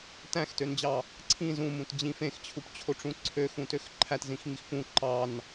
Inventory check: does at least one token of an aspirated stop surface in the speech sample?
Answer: yes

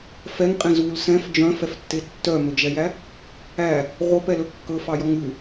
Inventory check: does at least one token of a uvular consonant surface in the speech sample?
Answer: yes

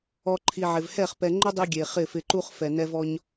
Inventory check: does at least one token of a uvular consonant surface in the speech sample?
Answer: yes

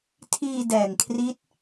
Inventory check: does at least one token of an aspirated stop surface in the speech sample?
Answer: yes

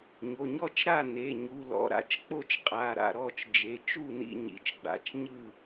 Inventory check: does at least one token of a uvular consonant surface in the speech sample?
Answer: yes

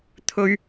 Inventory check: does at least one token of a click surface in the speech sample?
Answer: no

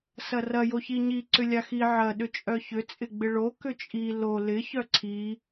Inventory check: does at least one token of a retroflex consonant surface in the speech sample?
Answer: yes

